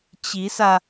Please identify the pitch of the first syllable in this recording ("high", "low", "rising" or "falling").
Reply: rising